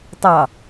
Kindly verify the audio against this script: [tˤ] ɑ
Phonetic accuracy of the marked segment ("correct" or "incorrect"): correct